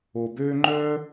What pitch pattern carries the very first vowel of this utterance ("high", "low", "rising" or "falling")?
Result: low